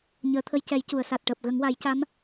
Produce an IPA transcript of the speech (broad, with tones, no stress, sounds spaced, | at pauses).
ɲ əː˨˩˦ t̪ʰ ə˧ j c ɛ˨˩˦ j c u˨˩˨ ə̯ s a˨˩ t̚ ʈ əː˨˩ p̚ ɣ ə˨˩˦ ŋ w a˨˩˦ j c a˧˥ m